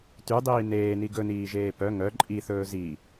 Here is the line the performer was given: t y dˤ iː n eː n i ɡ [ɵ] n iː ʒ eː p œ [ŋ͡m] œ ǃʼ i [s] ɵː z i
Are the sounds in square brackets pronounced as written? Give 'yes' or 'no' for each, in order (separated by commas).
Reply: yes, no, no